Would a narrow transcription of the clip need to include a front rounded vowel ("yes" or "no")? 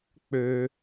yes